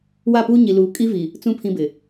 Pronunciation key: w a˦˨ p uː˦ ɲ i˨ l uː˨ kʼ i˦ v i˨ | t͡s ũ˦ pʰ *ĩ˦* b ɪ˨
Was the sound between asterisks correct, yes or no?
yes